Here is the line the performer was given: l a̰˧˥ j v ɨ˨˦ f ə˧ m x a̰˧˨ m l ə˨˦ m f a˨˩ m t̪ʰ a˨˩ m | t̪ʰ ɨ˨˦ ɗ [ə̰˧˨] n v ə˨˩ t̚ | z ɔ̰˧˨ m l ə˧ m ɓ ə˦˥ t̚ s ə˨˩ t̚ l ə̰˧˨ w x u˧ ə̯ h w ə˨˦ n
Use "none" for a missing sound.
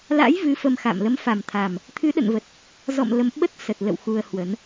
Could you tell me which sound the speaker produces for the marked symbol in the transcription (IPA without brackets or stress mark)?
ə̰˧˨